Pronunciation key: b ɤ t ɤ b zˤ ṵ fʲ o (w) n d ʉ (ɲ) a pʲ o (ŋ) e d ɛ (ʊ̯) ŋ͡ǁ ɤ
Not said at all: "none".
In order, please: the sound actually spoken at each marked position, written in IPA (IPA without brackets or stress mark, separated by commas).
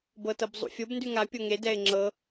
b, ŋ, ŋ, ɪ̯